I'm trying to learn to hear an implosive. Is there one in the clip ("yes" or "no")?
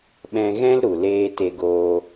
yes